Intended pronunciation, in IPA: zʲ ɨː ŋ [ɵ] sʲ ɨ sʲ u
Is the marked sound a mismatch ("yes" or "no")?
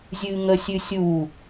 yes